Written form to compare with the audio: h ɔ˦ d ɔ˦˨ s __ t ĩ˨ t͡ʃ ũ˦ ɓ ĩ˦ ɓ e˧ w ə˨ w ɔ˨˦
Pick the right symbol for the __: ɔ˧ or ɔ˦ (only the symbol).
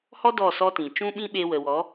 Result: ɔ˦